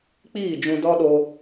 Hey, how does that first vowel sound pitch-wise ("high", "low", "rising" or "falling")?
falling